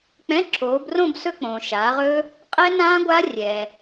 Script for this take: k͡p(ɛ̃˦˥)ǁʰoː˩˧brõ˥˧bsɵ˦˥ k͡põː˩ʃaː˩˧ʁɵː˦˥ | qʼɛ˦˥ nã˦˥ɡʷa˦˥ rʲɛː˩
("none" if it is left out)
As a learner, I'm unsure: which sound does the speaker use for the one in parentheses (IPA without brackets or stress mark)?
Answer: ɛ̃˧˥˧